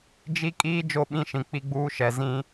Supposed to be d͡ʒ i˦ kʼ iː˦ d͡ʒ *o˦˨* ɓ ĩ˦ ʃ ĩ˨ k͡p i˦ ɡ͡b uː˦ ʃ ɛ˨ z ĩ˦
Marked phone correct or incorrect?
correct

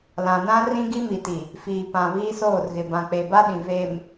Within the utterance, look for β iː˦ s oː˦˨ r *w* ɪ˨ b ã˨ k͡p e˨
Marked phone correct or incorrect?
incorrect: ɣ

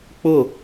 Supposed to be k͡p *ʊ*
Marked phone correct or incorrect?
correct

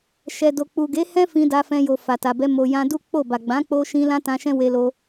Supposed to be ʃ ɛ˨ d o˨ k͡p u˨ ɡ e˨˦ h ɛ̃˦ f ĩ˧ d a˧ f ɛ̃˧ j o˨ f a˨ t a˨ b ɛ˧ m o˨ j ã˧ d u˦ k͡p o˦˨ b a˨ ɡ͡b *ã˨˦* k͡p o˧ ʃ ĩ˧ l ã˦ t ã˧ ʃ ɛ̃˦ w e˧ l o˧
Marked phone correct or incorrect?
correct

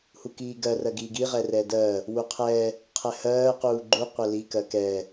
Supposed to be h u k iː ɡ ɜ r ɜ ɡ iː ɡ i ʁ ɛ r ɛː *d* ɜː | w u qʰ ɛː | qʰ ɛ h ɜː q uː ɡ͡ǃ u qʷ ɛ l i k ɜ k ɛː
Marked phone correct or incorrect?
correct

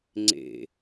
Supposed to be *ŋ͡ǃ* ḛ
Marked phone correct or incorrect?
incorrect: ŋ͡ǀ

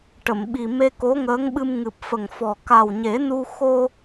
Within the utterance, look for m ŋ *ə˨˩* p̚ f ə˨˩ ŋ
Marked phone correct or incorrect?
incorrect: ɨ˨˩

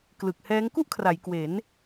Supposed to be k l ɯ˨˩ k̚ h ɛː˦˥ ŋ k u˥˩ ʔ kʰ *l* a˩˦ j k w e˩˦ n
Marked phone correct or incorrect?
incorrect: r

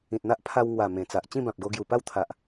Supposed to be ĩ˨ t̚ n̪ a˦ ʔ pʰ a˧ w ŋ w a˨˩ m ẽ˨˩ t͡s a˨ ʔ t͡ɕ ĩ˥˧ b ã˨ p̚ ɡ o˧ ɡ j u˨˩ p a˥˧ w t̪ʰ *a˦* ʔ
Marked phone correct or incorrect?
incorrect: a˨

